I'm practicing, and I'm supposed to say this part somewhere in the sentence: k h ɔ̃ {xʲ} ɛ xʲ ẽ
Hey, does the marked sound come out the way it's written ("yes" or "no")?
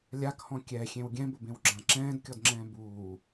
no